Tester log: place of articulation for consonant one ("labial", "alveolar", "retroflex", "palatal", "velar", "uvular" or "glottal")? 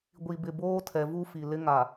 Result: velar